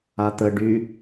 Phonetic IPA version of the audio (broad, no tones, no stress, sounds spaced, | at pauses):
a t̪ ə ɖ y